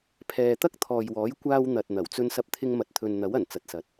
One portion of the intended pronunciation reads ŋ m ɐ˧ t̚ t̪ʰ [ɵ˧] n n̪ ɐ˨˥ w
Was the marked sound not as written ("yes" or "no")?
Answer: no